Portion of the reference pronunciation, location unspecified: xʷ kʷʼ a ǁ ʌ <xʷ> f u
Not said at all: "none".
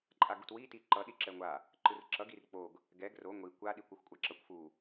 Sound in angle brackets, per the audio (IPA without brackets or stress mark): kʷ